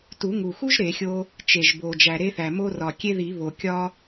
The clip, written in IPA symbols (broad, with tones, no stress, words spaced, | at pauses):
tu˨˩˦ŋu˨˩xu˥ʒ ɾe˨˩˦xʲo˥ | t͡ʃe˨˩ʒbo˨˩ d͡ʒæ˨˩ɾe˥θæ˨˩ mo˥rɒ˨˩kʲe˥ ði˨˩˦ βo˨˩ kʲɒ˥